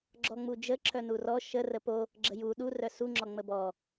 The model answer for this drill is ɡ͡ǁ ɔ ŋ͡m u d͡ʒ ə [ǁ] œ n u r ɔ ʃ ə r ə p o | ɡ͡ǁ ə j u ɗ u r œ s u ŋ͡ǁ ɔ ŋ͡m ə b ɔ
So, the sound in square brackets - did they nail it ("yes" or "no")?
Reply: yes